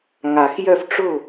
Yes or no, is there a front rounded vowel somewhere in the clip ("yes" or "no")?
yes